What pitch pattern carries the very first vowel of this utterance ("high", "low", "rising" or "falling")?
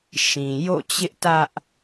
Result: low